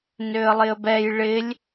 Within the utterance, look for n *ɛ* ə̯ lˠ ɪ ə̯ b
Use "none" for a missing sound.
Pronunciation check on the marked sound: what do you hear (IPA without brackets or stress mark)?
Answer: ø